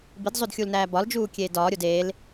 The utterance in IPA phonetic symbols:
bidzˤodxʲulnæː bɒld͡ʒuːkʲeːd ɒːɾʲod eːl

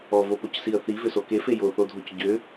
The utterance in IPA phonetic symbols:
ɔvopocsiə̯ θivʏso kefe joθodʱoc ɟʏ

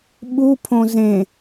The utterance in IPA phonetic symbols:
ɓupʰõ zẽ

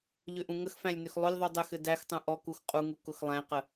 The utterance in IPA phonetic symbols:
ʎʏʔũŋəxfæ̃lʲ nʏxlˠʊlʲðˤu dˤɘxɘ dæxtˤũ ʔɔ kuxqʼuŋu kʊxlˠæ̃qə

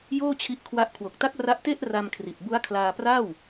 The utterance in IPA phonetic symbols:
joː˥˩t͡ɕʰi˦˥ʔkʰwa˦˥ʔ kʰwo˨˩k̚ta˦˥k̚ ra˦˥ʔte˥˩ʔ ra˧mkʰri˨˩t̚bu˦˥a̯kʰlaː˧ pra˥˩w

